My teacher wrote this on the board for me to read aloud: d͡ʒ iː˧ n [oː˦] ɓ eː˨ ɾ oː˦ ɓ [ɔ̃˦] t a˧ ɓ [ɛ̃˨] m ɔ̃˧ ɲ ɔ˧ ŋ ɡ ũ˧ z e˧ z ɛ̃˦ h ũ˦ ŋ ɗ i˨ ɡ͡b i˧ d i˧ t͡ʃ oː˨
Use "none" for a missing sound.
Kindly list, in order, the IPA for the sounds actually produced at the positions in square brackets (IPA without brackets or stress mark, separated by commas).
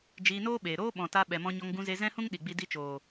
oː˦, ɔ̃˨, ɛ˨